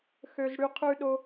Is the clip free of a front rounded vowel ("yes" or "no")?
no